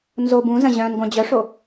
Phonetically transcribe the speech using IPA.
nzob ũzə̃ ʑœ̃n ɡʷœ̃d͡ʑœʂo

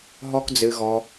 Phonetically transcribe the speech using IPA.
ɦɔ˦kd͡zɨ˧ɣɔ˧

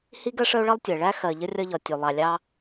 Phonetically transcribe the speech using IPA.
hi˥ɡɜ˥ʂə˥o̯ɭʌ˥lˠ tʲə˩ɭæ˥ xɜ˨ʎə˥rʲʌ˦ʎɒ˨ tʲu˩lˠɑ˨lʲɑ˦

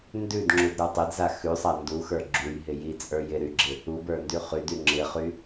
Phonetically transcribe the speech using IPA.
ndʉdŋ͡ǁudɾə˞ tˤɪdza xʉsˤa nduxə˞ ɡ͡ǁujɦɪ jit͡sʼə˞j ɪɾyɡ͡ǁɪ | ubə˞ndy χydy ŋ͡ǁɪχy

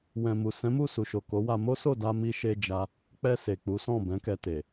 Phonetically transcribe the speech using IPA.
wɛ̃˨mu˨ sɛ̃˨˦mu˦˨su˨ʃo˨ ko˨˦wa˧ mo˦so˦˨ da˧mi˧ʃe˧ d͡ʒa˦ | k͡pɛ˧ se˨k͡pu˨˦sɔ̃˦˨ bɛ̃˨˦kɛ˧te˨

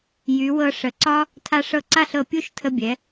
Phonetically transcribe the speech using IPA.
jy˩˧wɤ˧ ʂə˩˧ǀɒ˥ | tʰa˧ʂɤ˧˩ǀa˥˧ɬɤ˧˩ pʲu˥˧ʃtʰə˧bʲɛ˩˧

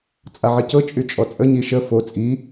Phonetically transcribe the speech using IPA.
t͡sʼaʕicɤ t͡ʃʼyt͡ʃʼɔt͡sʼə ɲiʃə fo t͡sʼi

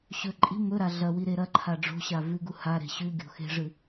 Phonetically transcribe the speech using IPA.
ɕɵ ǃʼi̤ mɵɾa ɮɐwi ɾeɾɐǃʰa ɖ͡ʐo̤ɕa vʉɡu haɾe̤ ɕʉɡʲo̤ xe̤ʐɨ

